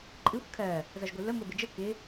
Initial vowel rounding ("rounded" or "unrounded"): unrounded